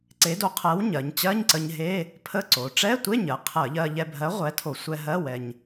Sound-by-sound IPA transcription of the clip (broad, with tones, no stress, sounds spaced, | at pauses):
ǀ e˨˥ d o˨˥ qʰ ɜ˨˥ w ɲ ɜ˩˧ ɲ t͡ɕ ɜ˧˥˧ ɲ ǀ ə˧ ɲ ɦ e˧˥˧ | pʰ ə˧˥˧ ǀ o˩˧ ʈ͡ʂ ɛ˧˥˧ tʷ e˧˥˧ ɲ ɜ˩ qʰ ɜ˧˩˧ ʎ ɜ˧ ʎ ɛ˧ bʱ ɜ˨˥ ʁʷ ɛ˨˥ tʰ o˧˩˧ sʷ ɛ˧ ɦ ɜ˧˥˧ w ɛ˧ ɲ